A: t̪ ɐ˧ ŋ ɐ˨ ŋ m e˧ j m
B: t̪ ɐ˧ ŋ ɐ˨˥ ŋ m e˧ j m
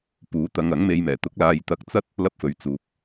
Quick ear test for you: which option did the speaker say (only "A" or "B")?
B